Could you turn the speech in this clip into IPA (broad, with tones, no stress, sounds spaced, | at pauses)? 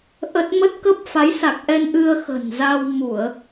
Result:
ʔ ə˦˥ t̚ m ə˦˥ t̚ k ə˦˥ p̚ f a˨˦ j s a˨˩ k̚ ʔ ɛ˧ n ʔ ɨ˧ ə̯ x ə̤˨˩ n z a˧ w m u˧˩˨ ə̯